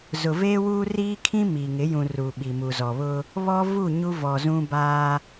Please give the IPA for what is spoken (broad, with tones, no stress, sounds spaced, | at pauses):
z ʊ˨ v eː˦ w uː˦ r iː˦ kʰ ĩ˦ m i˨ ŋ ɪ˨˦ j ũ˨ r u˨ ɓ i˨ m u˨ z ɔ˨ β ʊ˦ | β ɔ˦ v u˦˨ ɲ u˦ v ɔ˨ z ũ˦ b aː˦